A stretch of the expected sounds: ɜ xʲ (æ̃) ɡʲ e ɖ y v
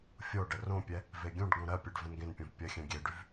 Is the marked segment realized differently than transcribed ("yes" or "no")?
yes